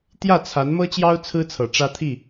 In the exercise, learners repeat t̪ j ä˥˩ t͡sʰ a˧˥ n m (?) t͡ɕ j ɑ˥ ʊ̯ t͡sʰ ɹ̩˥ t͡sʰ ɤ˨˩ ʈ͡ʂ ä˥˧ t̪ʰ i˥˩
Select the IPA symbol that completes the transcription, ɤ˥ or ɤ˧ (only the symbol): ɤ˥